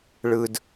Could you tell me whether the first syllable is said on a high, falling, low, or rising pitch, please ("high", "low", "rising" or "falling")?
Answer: low